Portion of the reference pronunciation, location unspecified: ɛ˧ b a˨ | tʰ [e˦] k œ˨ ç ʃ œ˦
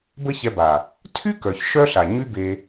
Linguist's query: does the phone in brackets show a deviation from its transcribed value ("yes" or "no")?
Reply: yes